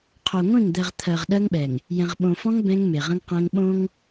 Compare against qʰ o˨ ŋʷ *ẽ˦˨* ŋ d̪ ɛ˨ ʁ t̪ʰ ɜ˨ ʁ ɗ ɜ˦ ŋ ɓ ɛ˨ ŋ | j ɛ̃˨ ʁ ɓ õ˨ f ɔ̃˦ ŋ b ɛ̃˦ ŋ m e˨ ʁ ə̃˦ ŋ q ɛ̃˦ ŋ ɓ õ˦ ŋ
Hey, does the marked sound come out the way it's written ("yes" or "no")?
yes